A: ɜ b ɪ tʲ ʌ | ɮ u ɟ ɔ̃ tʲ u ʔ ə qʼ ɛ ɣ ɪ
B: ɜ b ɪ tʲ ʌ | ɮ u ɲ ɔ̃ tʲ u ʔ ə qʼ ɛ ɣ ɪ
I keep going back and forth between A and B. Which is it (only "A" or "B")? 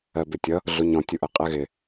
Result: B